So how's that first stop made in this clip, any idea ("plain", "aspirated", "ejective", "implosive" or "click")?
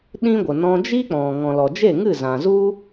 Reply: implosive